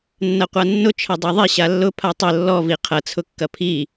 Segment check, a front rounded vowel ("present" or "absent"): absent